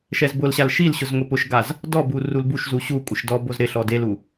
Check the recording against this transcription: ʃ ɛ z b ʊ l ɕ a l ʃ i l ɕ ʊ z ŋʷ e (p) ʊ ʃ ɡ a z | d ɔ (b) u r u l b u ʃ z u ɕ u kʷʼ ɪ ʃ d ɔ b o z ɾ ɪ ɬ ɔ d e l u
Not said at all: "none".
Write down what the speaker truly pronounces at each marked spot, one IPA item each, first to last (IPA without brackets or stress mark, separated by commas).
p, b